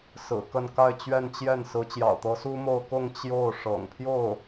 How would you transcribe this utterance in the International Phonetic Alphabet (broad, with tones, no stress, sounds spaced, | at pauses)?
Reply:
s ɹ̩˨˩ k ə˥˧ n k a˥˧ ɪ̯ t͡ɕ ɥ ɛ˥˧ n t͡ɕ j ɛ˥˩ n s ɹ̩˧˥ t͡ɕ j ɑ̰˨˩ ʊ̯ t̪ ɤ˧˥ s u˥ m o˥˧ ʊ̯ k ʊ˥˧ ŋ t͡ɕ j o˥˩ ʊ̯ ʂ ɤ̰˨˩ ŋ pʰ j o˥˩ ʊ̯